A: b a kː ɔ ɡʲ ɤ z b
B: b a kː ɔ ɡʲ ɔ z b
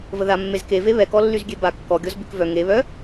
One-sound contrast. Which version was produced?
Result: B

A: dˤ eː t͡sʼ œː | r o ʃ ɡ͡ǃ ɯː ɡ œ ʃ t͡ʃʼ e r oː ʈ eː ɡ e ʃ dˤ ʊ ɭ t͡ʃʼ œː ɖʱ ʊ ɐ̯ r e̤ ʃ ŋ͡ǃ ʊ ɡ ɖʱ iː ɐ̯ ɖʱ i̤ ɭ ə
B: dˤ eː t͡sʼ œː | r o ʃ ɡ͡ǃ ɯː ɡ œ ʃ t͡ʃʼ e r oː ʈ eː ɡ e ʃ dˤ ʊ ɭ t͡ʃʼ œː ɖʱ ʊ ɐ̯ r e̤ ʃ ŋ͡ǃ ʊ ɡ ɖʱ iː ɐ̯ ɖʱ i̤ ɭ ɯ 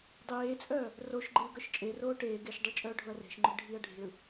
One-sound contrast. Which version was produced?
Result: B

